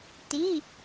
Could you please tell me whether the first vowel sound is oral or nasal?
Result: oral